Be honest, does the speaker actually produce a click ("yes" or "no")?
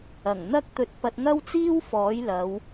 no